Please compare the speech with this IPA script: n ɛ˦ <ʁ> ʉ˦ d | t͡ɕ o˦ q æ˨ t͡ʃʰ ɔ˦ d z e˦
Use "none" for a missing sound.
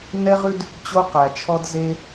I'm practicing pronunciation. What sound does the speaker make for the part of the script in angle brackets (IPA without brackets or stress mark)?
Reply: ʁ